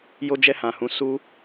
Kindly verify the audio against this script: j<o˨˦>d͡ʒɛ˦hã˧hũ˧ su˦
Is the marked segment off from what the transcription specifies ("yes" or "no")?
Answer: yes